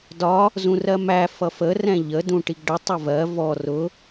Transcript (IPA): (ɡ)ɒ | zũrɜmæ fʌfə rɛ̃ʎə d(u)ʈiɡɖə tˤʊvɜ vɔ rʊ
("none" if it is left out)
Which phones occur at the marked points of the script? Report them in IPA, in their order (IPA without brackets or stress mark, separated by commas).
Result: d, ũ